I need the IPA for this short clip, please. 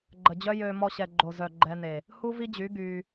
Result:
ɡ͡ǃ ə˨ d͡ʑ œ˦ j ø˧ m ɔ˧ ɕ ɛ˨ ɡ͡ǃ o˨ z œ˨ ɡ͡ǃ ɛ˧ n e˨ | h u˦ v i˦ d͡ʑ y˨˦ ɡ y˧

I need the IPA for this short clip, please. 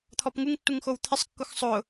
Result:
t̪ʰ ɔ p ŋ u ŋ tː u ŋ x o w t̪ʰ ɪ sˤ kː ʊ x sˤ ʊ

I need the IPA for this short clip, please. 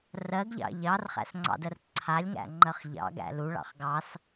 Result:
r ɜ ɡ ʎ ɑ̰ ʎ ɑ r χ æ̰ s ŋ͡ǀ ɑ̰ d ɜ r ǀʰ a lʲ ŋ æ̰ ŋ͡ǃ ɜ χ ʎ ɑ̰ ɡ æ̰ l u ɭ ɑ̰ χ ɡ ɑ s

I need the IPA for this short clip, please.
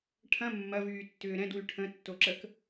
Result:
ʈʰ ɐ̃ mː ɐ v yː tː ʏː ɾ ɛ̃ d w y ʈʰ ə̃ tː o ǁ ə k

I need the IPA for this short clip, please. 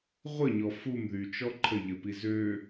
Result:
ʁʷ ə ɲ ɔ f u m ð y t͡ʃ ɔ ǃʰ ə ʎ ə p i z ø

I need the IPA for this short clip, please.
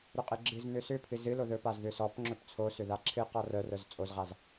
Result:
ɾ ʏ qʼ ɨ ɡ͡ǁ ɨ z n ʏ s ʏ pʰ ɨ z ɨ l o ð ɵ p a z ð ʏ s ɔ p ŋ͡ǁ ɵ p t͡sʰ o s ʏ ð a ǁʰ ɨ q ɔ r œ r œ z t͡sʼ o z ʁ a z

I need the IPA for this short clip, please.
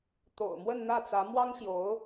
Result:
t̪ o̰˨˩ ʊ̯ m w ə˥˧ n n̪ ä˥˩ t͡s ä˧˥ m w ɑ˥ ŋ ɕ j o˧˥ ʊ̯

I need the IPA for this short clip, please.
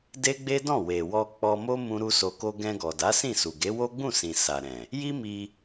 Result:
d e˦ ɡ͡b e˦ d ɔ̃˦˨ w e˨ w ɔ˧ k͡p ɔ˧ m o˦ m ũ˦ ɾ u˦ s o˧ k o˦ ɡ ɛ̃˧ ɡ ɔ˨ d a˨˦ s ĩ˦˨ s u˨ ɡ e˨˦ w o˦ ɡ͡b ũ˦˨ s ĩ˨ s a˨ ɾ ɛ̃˨ | j i˦ m i˧

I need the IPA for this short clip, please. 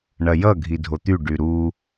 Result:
ɳ ɐ j ʌ ɡʱ i dʱ o t̪ y ɖ y ɾ u

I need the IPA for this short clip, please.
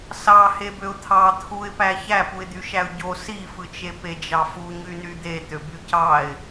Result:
s ɑ h e b ø ʊ̯ t̪ʰ ɑ t̪ʰ u ɪ̯ p æ ç æ p u ɪ̯ d̪ y ʃ æ ʊ̯ ɟ o s i f ɯ t͡ʃ e p e d͡ʒ ɑ f u ɲ y n y d̪ e t̪ ø b y c ɑ ɪ̯

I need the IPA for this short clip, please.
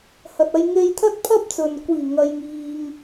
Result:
h ɐ˨ t̚ ɐ˧ j ŋ e˧ j t̪ʰ ɐ˥ t̚ pʰ ɐ˥ p̚ t͡s ɵ˨ n kʷ iː˨˩ ŋ ɐ˨ j ŋ iː˨ ŋ

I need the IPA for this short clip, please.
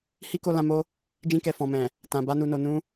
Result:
h i˦ k o˧ l ã˧ m o˦ | d͡ʒ ĩ˧ k ɛ˨ f ɔ̃˨ m ɛ̃˨ | t ã˨ b a˧ n u˨ n o˨ n ũ˧

